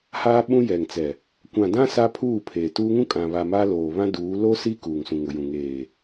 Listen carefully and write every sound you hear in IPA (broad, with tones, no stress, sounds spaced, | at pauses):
h aː˦ ɓ ũ˦ j ɛ˨ ŋ t͡s ɛ˨ | kʷ ã˨ d ã˦ s a˦ pʰ uː˦˨ pʰ eː˨ t uː˦ ŋ ũ˦ kʼ ã˨ β a˨ m aː˦ l oː˨ β ã˦ d uː˨˦ l o˦ s i˦ k uː˨ ŋ s ũ˨ ŋ ʊ˨ j ũ˨ ŋ eː˨